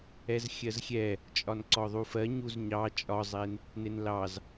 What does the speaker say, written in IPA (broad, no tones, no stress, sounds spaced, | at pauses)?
ɛ z xʲ ɜ z xʲ ɛ | t͡ʃʼ ɒ n ǀ ɔ ðˤ u f ɜ ɲ u z ɲ ɑ t͡ʃʼ ɒ zˤ e n | n e n l ɑ z